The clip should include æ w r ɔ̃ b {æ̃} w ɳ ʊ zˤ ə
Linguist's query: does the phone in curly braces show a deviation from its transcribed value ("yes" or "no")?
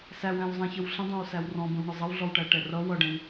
yes